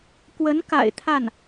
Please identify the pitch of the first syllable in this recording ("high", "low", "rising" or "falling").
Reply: rising